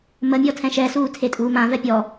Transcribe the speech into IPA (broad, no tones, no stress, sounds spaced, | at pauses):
m ə mʲ ɔ tʰ ɛ̃ ʃ ɛ s uː tʰ e tʼ uː m ã v ɛ pʲ ɔ